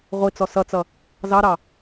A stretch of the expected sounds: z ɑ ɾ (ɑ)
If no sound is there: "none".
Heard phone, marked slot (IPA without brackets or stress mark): ɑ